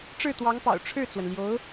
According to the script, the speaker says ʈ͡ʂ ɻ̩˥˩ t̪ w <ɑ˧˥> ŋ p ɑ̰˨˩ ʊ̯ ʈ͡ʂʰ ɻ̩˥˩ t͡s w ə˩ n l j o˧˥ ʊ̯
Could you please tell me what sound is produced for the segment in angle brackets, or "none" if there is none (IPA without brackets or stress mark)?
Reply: ɑ˧˥